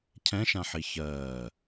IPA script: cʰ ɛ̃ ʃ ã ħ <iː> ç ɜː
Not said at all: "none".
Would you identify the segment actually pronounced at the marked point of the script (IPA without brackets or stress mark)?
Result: i